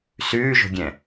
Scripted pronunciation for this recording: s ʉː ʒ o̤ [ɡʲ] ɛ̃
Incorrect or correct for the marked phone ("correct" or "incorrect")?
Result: correct